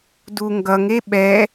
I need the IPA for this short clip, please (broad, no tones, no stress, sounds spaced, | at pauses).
d u ŋ ɡ ʌ ŋ e ɓ ɛ